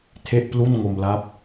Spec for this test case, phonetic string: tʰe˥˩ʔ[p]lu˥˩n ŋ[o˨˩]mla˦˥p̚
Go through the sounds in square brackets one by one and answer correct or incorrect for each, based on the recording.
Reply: correct, incorrect: o˧

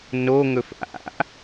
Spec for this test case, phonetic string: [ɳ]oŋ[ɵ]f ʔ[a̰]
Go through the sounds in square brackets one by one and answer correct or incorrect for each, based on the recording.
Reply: incorrect: n, correct, correct

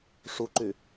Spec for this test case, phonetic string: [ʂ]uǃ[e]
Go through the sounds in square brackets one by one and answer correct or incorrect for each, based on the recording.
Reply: correct, incorrect: y

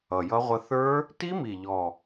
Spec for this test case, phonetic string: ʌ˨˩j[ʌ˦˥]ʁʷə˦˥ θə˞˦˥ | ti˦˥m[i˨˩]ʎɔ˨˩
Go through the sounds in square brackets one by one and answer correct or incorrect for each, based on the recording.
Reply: correct, correct

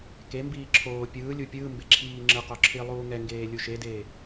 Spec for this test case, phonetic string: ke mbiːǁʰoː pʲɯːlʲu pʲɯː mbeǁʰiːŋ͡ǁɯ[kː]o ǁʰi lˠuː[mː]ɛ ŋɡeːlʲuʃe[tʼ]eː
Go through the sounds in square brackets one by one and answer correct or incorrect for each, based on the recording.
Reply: incorrect: q, incorrect: ŋ, incorrect: d

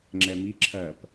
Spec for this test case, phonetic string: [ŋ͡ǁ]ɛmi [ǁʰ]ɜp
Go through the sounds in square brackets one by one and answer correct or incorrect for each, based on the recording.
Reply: correct, correct

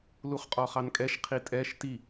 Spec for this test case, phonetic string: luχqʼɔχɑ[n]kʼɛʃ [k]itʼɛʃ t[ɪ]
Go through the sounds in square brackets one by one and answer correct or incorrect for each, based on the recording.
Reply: correct, incorrect: qʰ, incorrect: i

